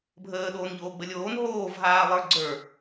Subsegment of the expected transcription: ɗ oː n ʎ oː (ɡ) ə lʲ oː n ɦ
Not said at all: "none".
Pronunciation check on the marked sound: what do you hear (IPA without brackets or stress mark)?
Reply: ɡ͡b